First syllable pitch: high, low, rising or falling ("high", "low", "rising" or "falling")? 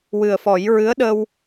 low